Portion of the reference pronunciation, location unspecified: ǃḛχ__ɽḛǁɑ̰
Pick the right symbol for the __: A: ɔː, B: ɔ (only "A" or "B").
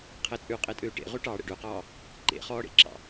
A